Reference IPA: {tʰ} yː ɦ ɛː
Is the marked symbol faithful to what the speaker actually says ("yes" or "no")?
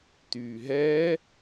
no